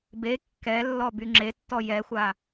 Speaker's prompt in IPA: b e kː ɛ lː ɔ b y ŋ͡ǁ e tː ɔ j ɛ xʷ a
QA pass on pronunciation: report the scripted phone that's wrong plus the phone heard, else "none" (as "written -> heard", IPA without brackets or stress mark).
none